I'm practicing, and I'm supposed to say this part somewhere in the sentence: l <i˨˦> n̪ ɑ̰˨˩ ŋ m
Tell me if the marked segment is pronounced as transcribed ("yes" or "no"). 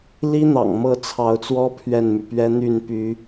no